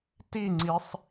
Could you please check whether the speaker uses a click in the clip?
yes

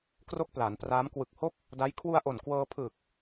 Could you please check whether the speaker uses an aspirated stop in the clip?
yes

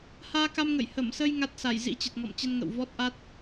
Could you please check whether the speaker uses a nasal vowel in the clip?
no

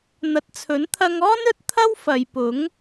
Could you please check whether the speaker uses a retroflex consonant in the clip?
no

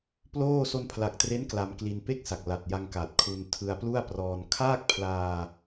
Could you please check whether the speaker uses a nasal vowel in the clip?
no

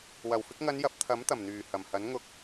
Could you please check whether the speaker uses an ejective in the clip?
no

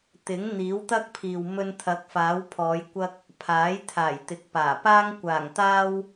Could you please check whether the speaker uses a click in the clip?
no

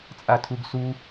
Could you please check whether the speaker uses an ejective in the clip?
yes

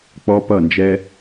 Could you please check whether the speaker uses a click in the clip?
no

